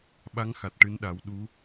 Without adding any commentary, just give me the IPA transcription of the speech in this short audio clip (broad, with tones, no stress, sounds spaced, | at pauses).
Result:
ɓ a˧˥ ŋ x a˨˩ t̚ ʈ ɨ˧˥ n ɗ a˨˩˦ w ɗ u˧˥